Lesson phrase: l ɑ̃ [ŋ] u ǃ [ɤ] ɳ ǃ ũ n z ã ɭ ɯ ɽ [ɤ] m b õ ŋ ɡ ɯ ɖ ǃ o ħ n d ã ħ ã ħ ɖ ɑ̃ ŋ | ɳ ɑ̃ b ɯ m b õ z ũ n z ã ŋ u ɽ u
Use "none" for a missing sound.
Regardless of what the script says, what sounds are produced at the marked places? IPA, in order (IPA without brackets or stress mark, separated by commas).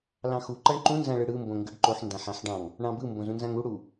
x, ɤ, ɯ